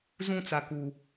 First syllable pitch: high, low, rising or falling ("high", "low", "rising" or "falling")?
falling